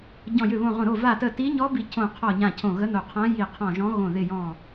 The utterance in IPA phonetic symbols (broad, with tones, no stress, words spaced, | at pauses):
ɟɔ̃˧˩jʏ˧˩βõ˧˩ʁõ˧˩ ɾo˧˩va˧˩tə˧˩ ti˧˥ɲɔ˧˥bi˧˩ cʰõ˧˩qʰɔ˧˩ɲã˧˩ cʰõ˧˩ɣə˧˥no˧˩qʰã˧˥ ji˧˩qʰɔ̃˧˩ʒɔ̃˧˥ ɣõ˧˩ ðɪ˧˩jɔ̃˧˩